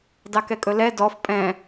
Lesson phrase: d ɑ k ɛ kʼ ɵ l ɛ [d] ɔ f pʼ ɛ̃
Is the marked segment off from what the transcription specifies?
no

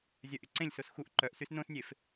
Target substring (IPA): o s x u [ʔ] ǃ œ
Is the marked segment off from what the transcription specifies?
no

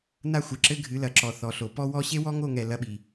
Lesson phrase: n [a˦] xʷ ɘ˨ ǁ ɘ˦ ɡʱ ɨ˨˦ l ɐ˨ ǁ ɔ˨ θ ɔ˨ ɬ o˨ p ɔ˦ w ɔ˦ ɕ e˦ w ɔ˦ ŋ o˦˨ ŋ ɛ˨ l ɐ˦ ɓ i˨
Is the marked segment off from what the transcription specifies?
no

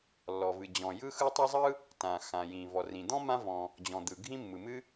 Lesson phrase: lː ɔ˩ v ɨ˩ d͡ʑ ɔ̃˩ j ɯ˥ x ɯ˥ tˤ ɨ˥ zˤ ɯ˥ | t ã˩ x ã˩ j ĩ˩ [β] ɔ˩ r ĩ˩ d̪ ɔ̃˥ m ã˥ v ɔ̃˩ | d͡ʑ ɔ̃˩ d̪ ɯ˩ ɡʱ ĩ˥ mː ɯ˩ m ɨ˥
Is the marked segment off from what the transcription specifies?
yes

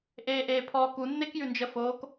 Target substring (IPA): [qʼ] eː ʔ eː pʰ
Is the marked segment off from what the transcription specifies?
yes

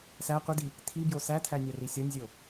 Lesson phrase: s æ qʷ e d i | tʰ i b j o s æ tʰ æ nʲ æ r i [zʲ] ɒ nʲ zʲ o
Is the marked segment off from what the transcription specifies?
yes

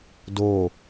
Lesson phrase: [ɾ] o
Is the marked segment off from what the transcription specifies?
yes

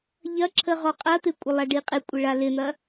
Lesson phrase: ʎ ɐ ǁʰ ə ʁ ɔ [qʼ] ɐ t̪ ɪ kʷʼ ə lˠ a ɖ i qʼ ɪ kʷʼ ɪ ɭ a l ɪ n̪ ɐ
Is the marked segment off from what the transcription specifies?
no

